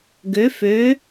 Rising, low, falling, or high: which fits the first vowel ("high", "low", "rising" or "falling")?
rising